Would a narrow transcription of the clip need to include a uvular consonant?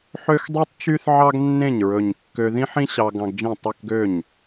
no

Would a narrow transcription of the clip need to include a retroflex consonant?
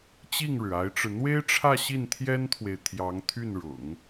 yes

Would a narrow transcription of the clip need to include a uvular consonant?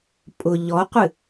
yes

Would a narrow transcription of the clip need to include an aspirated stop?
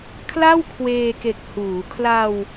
yes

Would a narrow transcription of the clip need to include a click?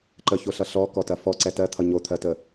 yes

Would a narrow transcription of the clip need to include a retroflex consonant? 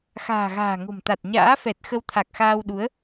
no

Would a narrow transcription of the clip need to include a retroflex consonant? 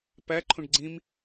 yes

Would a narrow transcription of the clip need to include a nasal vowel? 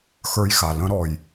yes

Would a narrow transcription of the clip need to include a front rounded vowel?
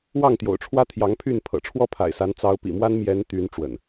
yes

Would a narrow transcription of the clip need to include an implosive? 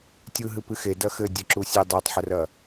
no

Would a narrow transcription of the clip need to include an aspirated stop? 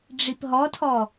yes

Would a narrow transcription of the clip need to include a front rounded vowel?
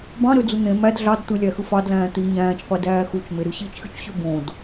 yes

